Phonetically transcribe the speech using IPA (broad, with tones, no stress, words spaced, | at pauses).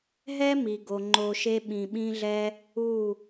ɦɛ˦mi˨ɡo˨ ŋ͡ǃo˧ʃe˦ ɓĩ˧ɓĩ˦ɮɛ˦ | u˦˨